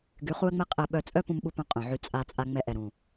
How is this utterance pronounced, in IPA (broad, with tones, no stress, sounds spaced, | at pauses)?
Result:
ɡ y˨˦ χ u˦ ə̯ ŋ͡m ɛ˦ qʼ ɛ˨ ɓ œ˨ t͡sʼ œ˦ p ũ˦ m ɓ u˦ p œ̃˦ qʼ œ̃˨ ʕ y˦ t͡sʼ a˦ t͡sʼ a˦ ŋ͡m ɛ˦ ʔ ɛ˨ ɾ ũ˨